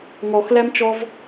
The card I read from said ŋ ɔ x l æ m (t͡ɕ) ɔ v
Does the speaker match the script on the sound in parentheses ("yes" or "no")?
no